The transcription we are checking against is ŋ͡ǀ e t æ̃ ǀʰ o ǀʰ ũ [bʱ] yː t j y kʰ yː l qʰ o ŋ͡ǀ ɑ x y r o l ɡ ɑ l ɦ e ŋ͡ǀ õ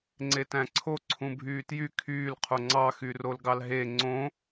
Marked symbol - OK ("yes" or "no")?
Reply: yes